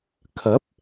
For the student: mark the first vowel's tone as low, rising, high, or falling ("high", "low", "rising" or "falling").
rising